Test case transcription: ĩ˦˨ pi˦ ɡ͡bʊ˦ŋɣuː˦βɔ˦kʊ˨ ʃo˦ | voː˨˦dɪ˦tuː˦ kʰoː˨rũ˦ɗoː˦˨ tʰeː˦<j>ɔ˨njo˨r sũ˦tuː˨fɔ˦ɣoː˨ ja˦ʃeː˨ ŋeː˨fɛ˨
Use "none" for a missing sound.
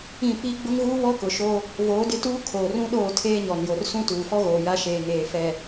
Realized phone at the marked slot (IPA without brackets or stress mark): ɲ